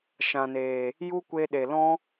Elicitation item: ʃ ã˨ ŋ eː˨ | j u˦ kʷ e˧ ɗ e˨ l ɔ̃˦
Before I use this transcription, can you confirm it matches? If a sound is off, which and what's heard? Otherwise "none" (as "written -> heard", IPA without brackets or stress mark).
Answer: ŋ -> n